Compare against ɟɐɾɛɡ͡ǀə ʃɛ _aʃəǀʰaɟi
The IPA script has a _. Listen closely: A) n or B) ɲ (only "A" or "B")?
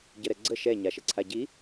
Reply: B